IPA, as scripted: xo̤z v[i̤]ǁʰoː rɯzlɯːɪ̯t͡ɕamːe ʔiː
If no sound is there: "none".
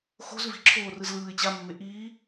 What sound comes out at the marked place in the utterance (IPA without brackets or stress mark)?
i̤